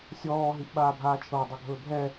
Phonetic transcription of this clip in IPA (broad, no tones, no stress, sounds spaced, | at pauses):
sʲ ɔː ɦ i ʔ ɓ aː bʱ aː t͡ʃʰ ɤ i̯ dˤ ɤ ɡʱ ɵː bʱ ɛ